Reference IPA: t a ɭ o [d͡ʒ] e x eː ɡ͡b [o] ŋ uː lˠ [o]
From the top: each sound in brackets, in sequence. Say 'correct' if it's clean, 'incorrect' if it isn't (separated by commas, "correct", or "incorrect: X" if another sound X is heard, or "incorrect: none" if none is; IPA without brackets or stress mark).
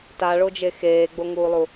correct, correct, incorrect: u